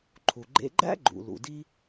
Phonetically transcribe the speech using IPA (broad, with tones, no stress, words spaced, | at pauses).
ǃʰu˩ɡ͡ǃḛ˧ ɡ͡ǃæ̰˥ɡ͡ǃṵ˩ lṵ˩di˥